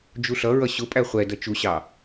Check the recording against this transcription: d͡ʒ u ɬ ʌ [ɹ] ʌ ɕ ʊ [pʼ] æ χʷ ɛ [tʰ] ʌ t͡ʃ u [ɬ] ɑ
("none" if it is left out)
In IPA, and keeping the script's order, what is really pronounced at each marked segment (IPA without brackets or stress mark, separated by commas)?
ɹ, pʼ, d, ɕ